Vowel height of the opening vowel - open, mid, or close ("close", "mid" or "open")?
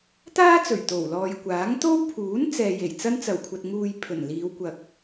open